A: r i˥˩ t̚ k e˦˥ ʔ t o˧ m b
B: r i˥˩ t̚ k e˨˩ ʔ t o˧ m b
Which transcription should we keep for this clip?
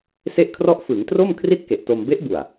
B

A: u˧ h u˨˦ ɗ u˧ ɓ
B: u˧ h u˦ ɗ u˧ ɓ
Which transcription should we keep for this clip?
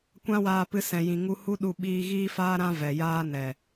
B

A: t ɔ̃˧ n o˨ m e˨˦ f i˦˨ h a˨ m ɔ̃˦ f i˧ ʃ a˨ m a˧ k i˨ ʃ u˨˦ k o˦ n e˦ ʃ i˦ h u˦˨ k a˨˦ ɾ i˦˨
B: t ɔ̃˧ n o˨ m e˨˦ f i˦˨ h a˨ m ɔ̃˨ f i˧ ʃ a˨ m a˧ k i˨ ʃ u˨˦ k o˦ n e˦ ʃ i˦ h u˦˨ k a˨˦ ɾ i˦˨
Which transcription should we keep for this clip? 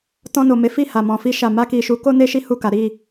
B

